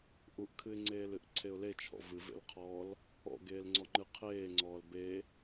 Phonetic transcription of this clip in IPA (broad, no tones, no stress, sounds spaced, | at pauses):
ʔ u ʔ kʰ ɨ ɪ̯ ŋ͡ǀ eː l ɨ ʔ ǀʰ e ʊ̯ l e t͡ʃʰ ɔ̰ v ɨ v ḛ l qʰ ɔː l | ɔ̰ ɡ eː l ŋ͡ǀ ɔ ŋ͡ǃ ɨ qʰ eː ŋ͡ǀ ɔː l b e